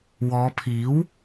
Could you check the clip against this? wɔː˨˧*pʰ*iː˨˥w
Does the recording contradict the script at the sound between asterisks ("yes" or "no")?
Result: no